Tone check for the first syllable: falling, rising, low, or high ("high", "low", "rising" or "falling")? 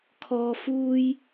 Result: high